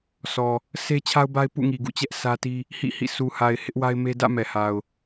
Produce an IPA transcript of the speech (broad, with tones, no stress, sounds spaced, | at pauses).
sʰ ɔ˨ | sʰ e˦ t͡ɕʰ a˦ ʊ̯ b a˦ ɪ̯ p ṵ˦˨ ŋ i˨ ɡ ṵ˦˨ t͡ɕ ɛ˦ ʔ s ä˦ t i˦ | h ḭ˦˨ h ḭ˦˨ sʰ u˨ h a˨ ɪ̯ h ɪ˦ ʔ w a˦ ɪ̯ m e˦ d ä̰˦˨ m ɛ˨ h a˨ ʊ̯